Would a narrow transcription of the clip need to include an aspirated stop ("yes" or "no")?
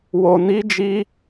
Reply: no